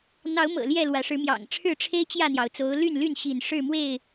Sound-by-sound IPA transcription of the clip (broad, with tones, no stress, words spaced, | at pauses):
n̪ɑ˨˦ʊ̯mɤ̰˨˩ ljɛ˥˨lwä˨˦ ʂɻ̩˨˦mjɑ̰˨˩ŋ ʈ͡ʂʰɻ̩˥˨ʈ͡ʂʰe˦ɪ̯ t͡ɕjä˥˨n̪jɑ˩ʊ̯t͡so˨˦ʊ̯ ly˥˨nly˥˨n ɕi˥˨n ʂɻ̩˥˨mwe˥˨ɪ̯